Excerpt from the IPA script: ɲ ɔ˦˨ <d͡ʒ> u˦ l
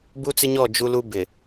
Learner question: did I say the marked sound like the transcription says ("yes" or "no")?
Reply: yes